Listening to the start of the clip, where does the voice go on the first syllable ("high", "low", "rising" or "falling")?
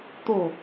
falling